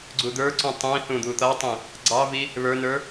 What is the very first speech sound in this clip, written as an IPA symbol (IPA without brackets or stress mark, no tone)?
ɡ͡ǀ